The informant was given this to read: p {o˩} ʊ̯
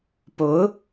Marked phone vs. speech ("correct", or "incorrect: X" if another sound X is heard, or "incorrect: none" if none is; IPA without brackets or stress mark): incorrect: o˧˥